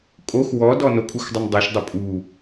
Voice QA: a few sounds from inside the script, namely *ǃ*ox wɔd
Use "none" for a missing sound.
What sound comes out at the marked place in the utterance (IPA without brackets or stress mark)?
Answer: kʼ